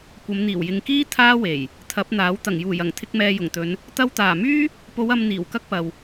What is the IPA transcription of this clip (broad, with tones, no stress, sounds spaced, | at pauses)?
kʷ ɐ˨˧ m n̪ iː˨˩ w j ɪ˨ ŋ k iː˥ t̪ʰ aː˥ w e˨˩ j | t̪ʰ ɐ˨˥ p̚ n̪ aː˨˥ w t̪ ɐ˨˩ ŋ j uː˨˩ j ɐ˨˩ ŋ t̪ʰ ɪ˧ k̚ m ɛː˨ j ʊ˨˩ ŋ t̪ ɵ˨˧ n | t̪ ɐ˧ w t̪ aː˨˩ m yː˥ | p o˨˧ w ɐ˨ m n̪ iː˨˩ w k ɐ˥ k̚ p ɐ˨ w